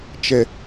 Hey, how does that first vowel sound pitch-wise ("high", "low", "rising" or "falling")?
low